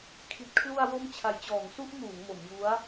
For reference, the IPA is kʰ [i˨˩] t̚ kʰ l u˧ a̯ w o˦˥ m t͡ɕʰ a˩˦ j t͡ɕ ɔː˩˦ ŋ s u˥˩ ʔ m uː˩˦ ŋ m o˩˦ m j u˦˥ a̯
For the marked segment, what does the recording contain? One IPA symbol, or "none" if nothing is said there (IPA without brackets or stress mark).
i˨˩